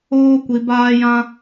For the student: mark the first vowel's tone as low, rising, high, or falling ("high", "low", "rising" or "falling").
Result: high